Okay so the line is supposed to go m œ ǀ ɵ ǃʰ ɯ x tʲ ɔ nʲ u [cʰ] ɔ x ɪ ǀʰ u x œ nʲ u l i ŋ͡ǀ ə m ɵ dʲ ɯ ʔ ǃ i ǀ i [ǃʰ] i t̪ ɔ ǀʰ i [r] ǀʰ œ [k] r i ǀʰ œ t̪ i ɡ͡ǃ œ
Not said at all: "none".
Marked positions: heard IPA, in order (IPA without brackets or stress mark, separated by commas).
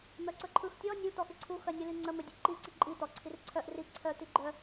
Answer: t̪, ǃʼ, r, ʔ